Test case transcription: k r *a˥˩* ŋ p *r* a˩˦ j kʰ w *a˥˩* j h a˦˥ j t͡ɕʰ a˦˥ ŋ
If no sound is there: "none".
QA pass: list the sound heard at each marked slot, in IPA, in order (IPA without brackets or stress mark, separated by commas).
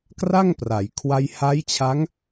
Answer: a˥˩, r, a˧